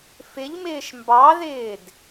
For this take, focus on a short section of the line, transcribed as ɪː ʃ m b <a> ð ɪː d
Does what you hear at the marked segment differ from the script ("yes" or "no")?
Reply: yes